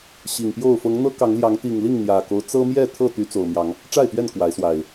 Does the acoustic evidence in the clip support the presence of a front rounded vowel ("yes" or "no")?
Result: yes